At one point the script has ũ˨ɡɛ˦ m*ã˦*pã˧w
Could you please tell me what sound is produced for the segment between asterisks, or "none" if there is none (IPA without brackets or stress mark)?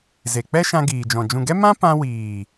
ã˦